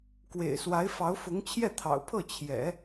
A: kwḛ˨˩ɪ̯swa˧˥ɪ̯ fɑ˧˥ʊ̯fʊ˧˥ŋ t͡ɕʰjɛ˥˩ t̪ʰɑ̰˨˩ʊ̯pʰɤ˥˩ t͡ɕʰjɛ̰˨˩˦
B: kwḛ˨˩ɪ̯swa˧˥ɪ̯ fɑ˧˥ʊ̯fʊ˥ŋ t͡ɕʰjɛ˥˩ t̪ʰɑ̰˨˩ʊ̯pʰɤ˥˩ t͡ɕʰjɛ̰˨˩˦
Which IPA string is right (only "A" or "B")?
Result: A